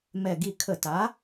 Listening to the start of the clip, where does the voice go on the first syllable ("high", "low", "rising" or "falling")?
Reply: low